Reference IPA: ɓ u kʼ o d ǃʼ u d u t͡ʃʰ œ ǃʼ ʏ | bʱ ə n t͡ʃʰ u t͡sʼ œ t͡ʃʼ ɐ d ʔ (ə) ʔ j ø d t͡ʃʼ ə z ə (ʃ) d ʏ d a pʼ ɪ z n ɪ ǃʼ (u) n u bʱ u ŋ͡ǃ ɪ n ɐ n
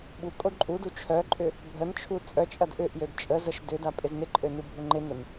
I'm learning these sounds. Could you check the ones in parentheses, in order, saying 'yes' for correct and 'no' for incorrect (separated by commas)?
no, yes, no